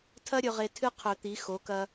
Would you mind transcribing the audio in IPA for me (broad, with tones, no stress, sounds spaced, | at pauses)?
tʰ ɐ˦ ɾʲ ɵ˨ ʁ e˨ tʰ ɨ˦ qʰ ɵ˨˩˦ t̪ i˩˥ x o˩˥ k ɐ˦